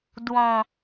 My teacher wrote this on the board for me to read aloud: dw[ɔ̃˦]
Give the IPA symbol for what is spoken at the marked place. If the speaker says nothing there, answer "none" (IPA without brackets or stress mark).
ɔ̃˦